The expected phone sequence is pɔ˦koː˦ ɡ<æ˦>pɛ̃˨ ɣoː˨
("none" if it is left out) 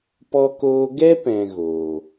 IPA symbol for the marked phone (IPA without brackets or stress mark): ɛ˦